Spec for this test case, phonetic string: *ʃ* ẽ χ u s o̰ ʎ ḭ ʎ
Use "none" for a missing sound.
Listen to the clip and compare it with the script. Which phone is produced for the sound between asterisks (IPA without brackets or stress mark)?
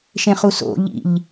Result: ʃ